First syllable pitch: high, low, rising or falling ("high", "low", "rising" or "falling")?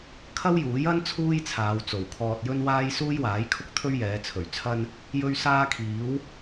high